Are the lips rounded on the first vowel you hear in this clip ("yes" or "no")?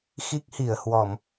no